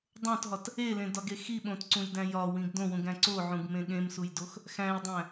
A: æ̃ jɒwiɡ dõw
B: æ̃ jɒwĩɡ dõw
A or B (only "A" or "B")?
B